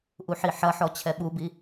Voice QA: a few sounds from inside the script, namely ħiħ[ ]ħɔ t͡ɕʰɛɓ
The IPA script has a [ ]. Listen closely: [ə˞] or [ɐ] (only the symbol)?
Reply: ɐ